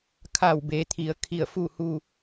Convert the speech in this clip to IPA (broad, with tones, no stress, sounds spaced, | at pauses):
kʰ a˧˩ w b e˩˧ t̪ʰ i˩˧ ə̯ kʰ i˧˩ ə̯ f u˥˨ h u˥˨